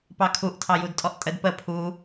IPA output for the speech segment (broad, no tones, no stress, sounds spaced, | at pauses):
p ɑ kʰ u ʔ tʰ ɑ j u d tʼ ɔ ʔ tʼ ə d p ə pʰ u